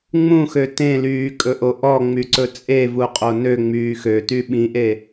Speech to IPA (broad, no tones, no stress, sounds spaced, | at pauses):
ŋ͡m ũ x ø t ẽ l yː kʼ ɵ ʔ o ʔ ɔ ŋ͡m y ǀ ɵ t͡sʼ e v u qʼ o n ø ŋ͡m yː x ø t y ɓ ĩ ʔ e